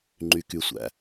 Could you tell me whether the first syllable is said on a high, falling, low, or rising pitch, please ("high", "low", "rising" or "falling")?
low